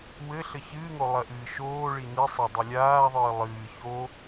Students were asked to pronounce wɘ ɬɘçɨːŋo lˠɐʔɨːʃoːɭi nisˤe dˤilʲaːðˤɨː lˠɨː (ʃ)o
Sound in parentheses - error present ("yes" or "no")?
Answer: yes